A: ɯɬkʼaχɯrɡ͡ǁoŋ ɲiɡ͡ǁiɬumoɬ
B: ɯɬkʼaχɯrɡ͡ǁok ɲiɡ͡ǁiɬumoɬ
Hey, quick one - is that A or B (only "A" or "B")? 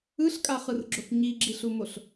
B